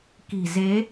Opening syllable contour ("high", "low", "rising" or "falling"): low